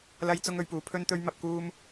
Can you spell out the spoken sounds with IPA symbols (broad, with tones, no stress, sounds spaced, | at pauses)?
l ɐ˥ j t͡s ʊ˥ ŋ ɵ˨˥ ɥ p uː˨˥ pʰ ɵ˥ n t̪ ɵ˥ ɥ m ɐ˧ p̚ k uː˥ m